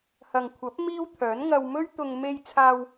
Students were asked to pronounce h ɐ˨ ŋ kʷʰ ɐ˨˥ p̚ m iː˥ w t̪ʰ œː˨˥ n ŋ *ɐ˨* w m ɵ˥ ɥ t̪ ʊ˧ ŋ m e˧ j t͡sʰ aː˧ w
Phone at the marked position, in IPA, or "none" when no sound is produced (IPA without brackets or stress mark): ɐ˧